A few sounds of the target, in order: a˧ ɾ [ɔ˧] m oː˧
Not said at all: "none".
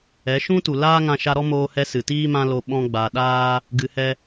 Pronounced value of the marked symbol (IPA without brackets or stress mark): ɔ˦